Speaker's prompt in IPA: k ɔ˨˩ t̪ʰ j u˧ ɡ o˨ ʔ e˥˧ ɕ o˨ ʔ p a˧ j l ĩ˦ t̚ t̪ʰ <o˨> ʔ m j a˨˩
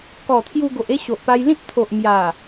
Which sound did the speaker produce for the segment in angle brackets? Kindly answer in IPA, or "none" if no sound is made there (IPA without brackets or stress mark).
o˨